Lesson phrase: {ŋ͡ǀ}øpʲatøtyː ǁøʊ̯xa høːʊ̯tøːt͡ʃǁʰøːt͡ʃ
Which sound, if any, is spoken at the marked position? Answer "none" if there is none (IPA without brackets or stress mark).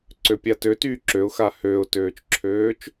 ǀ